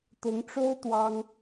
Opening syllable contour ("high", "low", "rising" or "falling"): rising